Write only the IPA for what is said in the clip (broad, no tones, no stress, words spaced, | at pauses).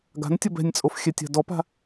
ɡa̤ntʲʌb ɛ̤nʲt͡sʼof xʲɛtʲa̤dɔpa̤